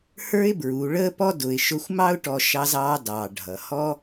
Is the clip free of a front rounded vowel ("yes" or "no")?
yes